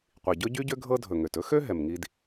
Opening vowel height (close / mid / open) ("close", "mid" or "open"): close